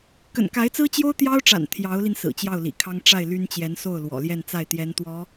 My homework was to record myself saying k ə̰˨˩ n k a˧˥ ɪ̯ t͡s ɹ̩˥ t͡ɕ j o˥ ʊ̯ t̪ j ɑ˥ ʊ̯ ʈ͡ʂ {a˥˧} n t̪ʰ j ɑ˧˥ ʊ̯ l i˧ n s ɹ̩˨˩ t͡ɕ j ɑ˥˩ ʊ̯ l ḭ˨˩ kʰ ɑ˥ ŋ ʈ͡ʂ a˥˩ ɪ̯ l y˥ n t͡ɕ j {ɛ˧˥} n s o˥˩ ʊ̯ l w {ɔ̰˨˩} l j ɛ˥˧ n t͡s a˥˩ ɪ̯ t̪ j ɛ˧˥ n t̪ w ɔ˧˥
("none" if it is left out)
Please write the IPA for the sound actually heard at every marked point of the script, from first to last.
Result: a̰˨˩, ɛ˧˥, ɔ̰˨˩

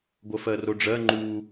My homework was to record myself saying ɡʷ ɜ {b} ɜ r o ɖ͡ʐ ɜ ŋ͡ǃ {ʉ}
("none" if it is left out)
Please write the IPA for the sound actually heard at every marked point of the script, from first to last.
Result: f, u

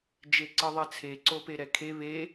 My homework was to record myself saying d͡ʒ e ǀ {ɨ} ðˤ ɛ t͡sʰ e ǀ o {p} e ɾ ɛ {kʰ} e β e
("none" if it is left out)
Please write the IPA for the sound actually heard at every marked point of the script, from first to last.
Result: ɨ, p, kʰ

